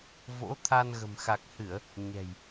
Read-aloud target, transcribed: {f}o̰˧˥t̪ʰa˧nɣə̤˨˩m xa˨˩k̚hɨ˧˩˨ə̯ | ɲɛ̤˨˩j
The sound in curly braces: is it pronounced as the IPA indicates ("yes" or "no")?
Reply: no